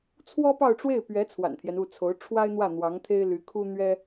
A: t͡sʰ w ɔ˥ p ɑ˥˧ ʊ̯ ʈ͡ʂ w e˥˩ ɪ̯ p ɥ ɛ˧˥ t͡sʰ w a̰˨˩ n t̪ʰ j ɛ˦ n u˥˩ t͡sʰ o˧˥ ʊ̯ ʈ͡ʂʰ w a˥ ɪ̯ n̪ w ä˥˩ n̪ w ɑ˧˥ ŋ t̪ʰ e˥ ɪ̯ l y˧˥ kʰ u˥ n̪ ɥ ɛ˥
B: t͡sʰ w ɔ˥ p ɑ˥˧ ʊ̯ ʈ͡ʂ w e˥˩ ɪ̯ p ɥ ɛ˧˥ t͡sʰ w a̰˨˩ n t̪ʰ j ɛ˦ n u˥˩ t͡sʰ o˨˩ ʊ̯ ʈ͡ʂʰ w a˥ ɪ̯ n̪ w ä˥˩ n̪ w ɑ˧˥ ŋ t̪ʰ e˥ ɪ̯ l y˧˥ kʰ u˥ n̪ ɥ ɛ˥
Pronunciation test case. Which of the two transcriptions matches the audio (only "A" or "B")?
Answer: A